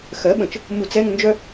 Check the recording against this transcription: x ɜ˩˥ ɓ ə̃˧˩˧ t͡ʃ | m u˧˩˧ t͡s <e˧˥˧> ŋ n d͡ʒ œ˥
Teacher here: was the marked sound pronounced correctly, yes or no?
no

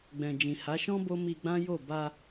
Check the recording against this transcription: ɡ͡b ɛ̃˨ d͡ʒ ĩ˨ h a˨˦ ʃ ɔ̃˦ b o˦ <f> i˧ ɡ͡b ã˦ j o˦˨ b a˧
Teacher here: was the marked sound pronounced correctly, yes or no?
no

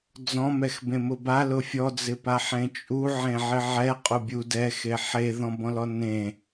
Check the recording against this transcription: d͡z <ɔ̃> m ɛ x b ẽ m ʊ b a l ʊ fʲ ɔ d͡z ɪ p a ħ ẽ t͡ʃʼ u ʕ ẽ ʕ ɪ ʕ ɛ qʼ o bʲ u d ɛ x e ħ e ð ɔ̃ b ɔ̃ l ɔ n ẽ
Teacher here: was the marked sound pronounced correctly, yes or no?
yes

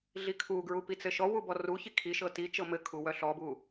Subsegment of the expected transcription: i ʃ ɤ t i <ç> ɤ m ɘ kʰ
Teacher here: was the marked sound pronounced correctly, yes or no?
no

